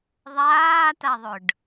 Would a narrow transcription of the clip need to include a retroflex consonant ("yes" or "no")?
yes